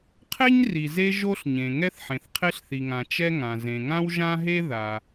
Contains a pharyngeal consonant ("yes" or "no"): yes